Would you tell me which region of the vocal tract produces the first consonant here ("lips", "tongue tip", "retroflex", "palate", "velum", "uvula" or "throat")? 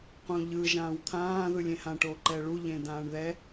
uvula